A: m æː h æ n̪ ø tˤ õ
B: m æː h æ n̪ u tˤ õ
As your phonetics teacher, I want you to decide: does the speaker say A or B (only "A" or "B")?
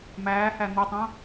B